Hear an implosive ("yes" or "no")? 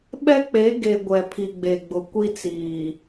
yes